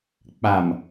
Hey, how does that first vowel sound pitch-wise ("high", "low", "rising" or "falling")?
low